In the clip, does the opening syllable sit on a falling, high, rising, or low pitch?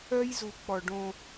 high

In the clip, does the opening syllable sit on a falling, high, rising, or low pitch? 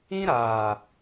high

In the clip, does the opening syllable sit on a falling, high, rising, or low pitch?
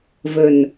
low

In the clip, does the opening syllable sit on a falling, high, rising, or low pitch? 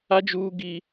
high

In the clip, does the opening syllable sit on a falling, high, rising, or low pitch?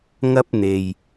high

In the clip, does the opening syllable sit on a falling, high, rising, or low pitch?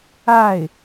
falling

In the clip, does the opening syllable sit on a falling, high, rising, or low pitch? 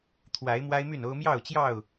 rising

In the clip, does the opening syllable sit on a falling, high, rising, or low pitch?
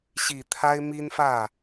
low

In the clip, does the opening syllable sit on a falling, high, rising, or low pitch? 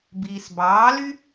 low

